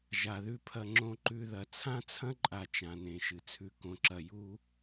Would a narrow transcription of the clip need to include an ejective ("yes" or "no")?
yes